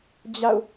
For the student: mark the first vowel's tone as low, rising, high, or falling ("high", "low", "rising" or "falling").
falling